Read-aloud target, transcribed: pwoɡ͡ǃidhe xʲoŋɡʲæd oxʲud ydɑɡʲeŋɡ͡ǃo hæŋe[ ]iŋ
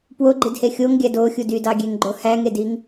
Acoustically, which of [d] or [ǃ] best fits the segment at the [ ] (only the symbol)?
d